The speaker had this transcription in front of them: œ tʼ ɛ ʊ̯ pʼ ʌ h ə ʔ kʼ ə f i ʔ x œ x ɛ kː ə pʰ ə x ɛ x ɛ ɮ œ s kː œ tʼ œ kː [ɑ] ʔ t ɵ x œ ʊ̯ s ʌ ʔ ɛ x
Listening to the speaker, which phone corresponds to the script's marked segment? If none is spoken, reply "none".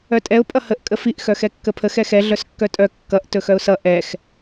ʌ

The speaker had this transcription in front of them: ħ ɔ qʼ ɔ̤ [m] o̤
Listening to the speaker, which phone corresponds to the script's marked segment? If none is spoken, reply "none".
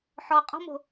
m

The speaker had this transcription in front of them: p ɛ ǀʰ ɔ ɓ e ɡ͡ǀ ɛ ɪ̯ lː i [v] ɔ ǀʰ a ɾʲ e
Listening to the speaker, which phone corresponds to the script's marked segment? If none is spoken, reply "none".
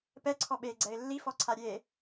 f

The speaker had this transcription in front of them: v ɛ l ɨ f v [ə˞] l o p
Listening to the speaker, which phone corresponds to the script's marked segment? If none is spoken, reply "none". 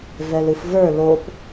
ə˞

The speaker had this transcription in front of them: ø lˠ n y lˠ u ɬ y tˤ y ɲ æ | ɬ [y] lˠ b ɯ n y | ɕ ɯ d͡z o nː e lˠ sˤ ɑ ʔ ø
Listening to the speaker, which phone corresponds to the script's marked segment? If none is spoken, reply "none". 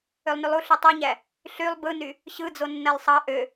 y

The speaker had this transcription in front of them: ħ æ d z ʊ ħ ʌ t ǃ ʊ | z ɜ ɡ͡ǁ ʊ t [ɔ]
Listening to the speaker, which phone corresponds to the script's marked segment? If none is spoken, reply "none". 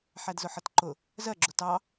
ɑ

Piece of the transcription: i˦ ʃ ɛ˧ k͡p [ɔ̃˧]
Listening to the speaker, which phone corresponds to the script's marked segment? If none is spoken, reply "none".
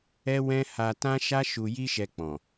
ɔ̃˨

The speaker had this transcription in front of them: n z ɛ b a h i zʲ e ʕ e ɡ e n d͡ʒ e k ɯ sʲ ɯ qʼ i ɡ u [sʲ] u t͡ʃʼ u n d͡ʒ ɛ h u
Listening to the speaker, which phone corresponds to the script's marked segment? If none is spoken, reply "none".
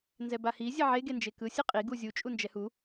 zʲ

